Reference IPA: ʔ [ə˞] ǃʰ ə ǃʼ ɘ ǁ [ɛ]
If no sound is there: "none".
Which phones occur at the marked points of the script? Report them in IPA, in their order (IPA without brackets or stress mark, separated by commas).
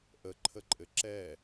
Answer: ə, ɛ